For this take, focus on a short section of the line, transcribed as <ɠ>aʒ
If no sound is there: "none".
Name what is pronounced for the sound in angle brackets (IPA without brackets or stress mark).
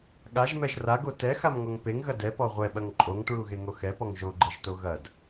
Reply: ɠ